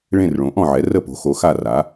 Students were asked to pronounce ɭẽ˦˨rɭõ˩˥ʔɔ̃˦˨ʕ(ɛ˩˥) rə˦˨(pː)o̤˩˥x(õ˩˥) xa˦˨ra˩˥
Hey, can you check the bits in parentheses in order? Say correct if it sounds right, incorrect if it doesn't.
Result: correct, incorrect: p, incorrect: o˩˥

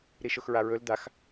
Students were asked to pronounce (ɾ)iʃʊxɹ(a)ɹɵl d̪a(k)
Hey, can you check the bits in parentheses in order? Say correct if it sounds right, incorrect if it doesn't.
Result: correct, correct, incorrect: x

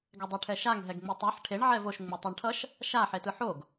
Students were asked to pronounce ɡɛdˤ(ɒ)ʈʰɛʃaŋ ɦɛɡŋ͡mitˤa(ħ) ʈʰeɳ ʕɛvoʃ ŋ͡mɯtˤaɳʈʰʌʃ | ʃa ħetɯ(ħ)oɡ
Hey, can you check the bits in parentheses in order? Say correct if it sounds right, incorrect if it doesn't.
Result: incorrect: ʌ, correct, correct

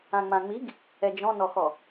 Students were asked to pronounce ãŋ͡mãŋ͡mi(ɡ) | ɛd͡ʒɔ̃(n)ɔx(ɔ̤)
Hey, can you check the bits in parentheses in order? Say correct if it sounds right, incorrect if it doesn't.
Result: correct, correct, incorrect: ɔ

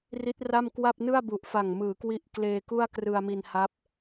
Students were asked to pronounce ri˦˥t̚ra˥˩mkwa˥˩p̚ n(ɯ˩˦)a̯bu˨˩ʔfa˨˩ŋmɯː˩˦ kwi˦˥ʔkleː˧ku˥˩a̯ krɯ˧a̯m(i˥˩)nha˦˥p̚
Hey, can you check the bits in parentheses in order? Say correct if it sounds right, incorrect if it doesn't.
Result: incorrect: ɯ˥˩, incorrect: i˧

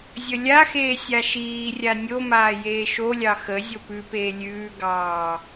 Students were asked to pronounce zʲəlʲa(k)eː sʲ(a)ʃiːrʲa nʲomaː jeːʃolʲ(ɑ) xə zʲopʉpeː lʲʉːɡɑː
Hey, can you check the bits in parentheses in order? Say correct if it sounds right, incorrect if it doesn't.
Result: incorrect: x, correct, correct

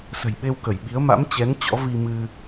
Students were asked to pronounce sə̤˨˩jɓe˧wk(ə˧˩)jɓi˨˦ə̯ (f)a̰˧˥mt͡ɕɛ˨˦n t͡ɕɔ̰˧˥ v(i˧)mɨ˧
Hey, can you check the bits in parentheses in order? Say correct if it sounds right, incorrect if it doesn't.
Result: correct, incorrect: m, correct

